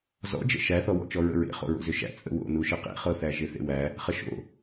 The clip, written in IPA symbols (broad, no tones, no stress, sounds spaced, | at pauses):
z ɔ̰ d͡ʒ ə̰ ʃ æ θ ɔ w ɔ̰ t͡ʃ ɔ ɹ ə̰ ɹ ḛ χ o̰ ɹ o̰ z ʏ ʃ æ̰ t͡sʼ ə̰ w o̰ n u ʃ ə q ḛ χ ɤ θ æ ʒ e θ ḛ w æ | χ ə ʃ o̰